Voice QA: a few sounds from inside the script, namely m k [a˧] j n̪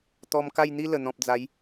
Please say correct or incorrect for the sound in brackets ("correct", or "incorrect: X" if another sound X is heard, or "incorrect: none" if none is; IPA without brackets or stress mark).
incorrect: a˥˧